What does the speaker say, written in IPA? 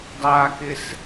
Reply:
dˤ a k ɪ s

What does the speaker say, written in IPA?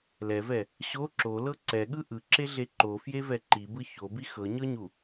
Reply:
l ɛ v ɛ | ɕ o ǁ o l ɤ ǀ ɛ ɠ ɯ ʔ ɯ ǁ e ɮ e ǃ o f j e v ɛ ǃ i b ɯ ç o b i x ɤ ɲ ɤ ɲ u

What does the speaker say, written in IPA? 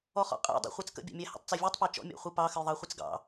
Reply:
ɔ χ ɔ̰ qʼ æ̰ dˤ æ̰ χʷ æ t͡s k ə̰ bʲ ɑ̰ mʲ æ h ə̰ tˤ t͡s æ vʲ ɔ tˤ p ɑ t͡ʃ ɔ̰ mʲ a̰ χʷ ɨ p ɑ x ə j ðˤ ɑ χʷ ɨ t͡s ɡ ɑ̰

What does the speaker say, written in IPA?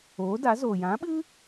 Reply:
oː˨˦ d a˨˦ z oː˨ j ã˨˦ ɓ ɨ˦

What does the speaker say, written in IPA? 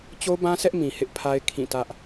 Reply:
t͡ɕ o˦ b ã˦ sʰ ɛ˦ ʔ m ĩ˨ h ɪ˦ ʔ pʰ a˦ ɪ̯ kʰ ĩ˦˨ t ä˦ ʔ

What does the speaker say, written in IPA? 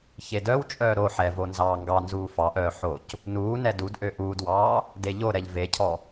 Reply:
ç e d œ w t͡ʃʼ œː ɾ o ħ ɛ v o n z ɑː ŋ ɡ ɑ n z uː f ɑ ʔ œː ħ o c | n uː n ɛ d u d ʔ ø ʔ uː d w ɑː | d e ʎ o ɾ ɛ ʎ v e cʰ ɔ

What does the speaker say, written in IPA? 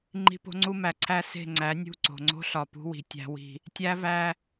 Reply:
ŋ͡ǃ i̤˦ p o̤˦ ŋ͡ǀ u˦ m æ˨ ǀʰ æ˦˨ s e̤˦˨ ŋ͡ǀ æ˨˦ nʲ ṳ˦˨ ǀ o̤˨ ŋ͡ǀ o̤˦ ɬ ɒ˨ p ṳ˦ w i̤˨ tʲ æ̤˦ w i̤˦ | tʲ æ˦ v æ˦

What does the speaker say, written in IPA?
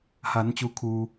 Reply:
h a˩˧ n t͡ɕ u˩ kʰ uː˩

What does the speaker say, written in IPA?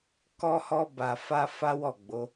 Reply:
k ɔ˧ h ɔ˧ b a˨ f a˧ f a˦ w ɔ˦˨ ɡ͡b o˨˦

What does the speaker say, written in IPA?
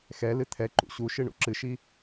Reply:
x ɛ l ɨ t̪ʰ ɛ ǃ ṵ ɕ u ʃ ɨ ɳ ṵ ǁ ɨ ʃ i

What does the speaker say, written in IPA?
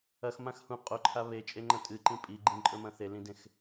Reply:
ɐ x m ã x h ũ qʼ o ǃʰ a β e t͡ʃʼ e ŋ͡ǃ ɐ̃ tʼ ɨ ǃ ĩ pʼ i ɡ͡ǃ ĩ ǃʼ ɵ m ɐ̃ θ e l ĩ d ẽ x

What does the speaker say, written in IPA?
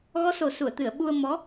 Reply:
ɣ ɔ˧˥ s o˨˩ s u˨˩˨ ə̯ t̪ ɨ˨˩˨ ə̯ ɓ u˧ ə̯ m ɔ˧˥

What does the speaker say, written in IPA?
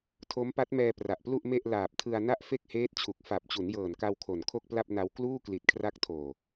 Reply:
tʰ o˦˥ m p a˦˥ t̚ m ɛː˧ p r a˨˩ ʔ p l u˥˩ ʔ m e˥˩ ʔ l aː˨˩ p̚ tʰ ɯ˧ a̯ n a˥˩ ʔ f e˥˩ k̚ h eː˦˥ t̚ t͡ɕʰ u˨˩ k̚ f a˨˩ p̚ t͡ɕ u˩˦ n j ɤː˨˩ n k a˧ w kʰ o˨˩ n kʰ o˥˩ k̚ p l a˥˩ p̚ n a˧ w k l uː˥˩ k l i˨˩ t̚ kʰ r a˦˥ k̚ tʰ oː˨˩

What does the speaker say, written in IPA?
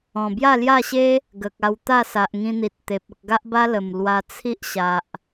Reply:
ɔ̃˨˩ b j a˥˧ l j a˥˧ ɕ e˦ | ɡ ə˨ k̚ a˧ w t̪ a˥˧ s a˨ ʔ ŋ ĩ˧ n̪ i˨ t̚ t̪ e˨ p̚ ə˨ k̚ ɡ a˦ ʔ b a˦ l ə˨˩ m l w a˧ t͡sʰ i˦ ʔ ɕ a˨ ʔ

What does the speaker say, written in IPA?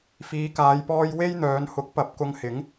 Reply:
f iː˨˧ k aː˨˧ j p ɔː˧ j w e˥ j n̪ œː˨˧ n h ʊ˨˥ k̚ p ɐ˨˥ p̚ k ʊ˧ ŋ h ɪ˨˥ ŋ

